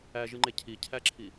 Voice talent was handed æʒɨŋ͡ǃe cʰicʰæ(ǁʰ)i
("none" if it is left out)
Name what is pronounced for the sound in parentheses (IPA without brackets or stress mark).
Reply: ǁʰ